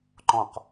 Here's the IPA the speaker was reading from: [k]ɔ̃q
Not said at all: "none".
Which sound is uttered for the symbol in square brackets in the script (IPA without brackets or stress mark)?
ǃ